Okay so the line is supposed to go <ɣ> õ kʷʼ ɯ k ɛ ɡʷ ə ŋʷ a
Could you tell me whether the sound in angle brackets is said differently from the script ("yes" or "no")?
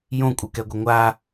yes